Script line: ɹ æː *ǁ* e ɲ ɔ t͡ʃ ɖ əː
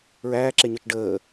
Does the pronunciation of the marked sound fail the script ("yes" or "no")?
no